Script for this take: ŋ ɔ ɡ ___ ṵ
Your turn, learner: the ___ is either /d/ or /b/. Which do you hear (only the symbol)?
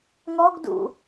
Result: d